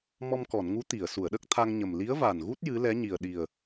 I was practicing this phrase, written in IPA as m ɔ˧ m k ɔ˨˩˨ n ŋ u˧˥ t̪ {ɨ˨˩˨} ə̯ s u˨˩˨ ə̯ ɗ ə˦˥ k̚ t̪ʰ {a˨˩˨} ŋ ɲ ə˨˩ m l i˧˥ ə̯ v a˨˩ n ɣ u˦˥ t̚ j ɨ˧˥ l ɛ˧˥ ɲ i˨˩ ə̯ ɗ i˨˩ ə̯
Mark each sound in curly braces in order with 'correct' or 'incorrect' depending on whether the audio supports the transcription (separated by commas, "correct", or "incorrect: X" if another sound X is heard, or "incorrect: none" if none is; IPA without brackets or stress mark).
incorrect: i˨˩˨, incorrect: a˧